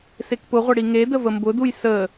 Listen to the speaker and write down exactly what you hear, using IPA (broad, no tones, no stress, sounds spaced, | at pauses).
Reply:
s e k p ʊ ʁʷ ə ɽ i ŋ e d ə v ə m b ʊ d u j s ə